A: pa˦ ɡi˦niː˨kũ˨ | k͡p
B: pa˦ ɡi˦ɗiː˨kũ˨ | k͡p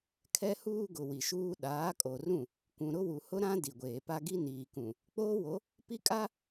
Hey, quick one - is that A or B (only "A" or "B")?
A